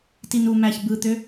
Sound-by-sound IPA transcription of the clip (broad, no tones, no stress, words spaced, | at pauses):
tinumæç bɯt̪ø